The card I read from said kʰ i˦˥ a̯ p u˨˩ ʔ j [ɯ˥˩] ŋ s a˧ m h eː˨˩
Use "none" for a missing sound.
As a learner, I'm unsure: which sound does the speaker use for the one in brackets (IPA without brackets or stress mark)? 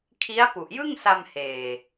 ɯ˥˩